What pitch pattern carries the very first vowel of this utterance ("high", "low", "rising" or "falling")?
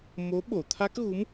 rising